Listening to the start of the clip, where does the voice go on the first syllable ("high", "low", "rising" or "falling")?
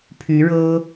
rising